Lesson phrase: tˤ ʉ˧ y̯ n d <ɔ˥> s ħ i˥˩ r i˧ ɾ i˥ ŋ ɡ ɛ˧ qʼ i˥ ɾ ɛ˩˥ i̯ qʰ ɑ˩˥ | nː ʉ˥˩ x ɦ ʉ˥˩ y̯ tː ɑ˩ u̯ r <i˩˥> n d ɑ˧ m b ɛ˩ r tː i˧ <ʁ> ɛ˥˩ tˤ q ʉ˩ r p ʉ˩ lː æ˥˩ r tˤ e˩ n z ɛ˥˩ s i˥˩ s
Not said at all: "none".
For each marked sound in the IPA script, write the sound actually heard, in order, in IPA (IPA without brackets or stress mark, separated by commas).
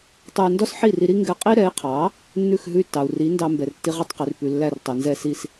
ɔ˥, i˩˥, ʁ